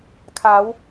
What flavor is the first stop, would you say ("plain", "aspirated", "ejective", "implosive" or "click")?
aspirated